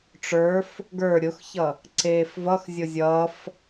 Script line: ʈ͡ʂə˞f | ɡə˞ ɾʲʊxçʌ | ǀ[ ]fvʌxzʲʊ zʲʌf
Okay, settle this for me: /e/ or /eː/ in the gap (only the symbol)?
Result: eː